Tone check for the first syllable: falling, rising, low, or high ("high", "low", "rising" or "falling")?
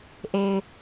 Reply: low